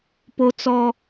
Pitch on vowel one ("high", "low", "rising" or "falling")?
high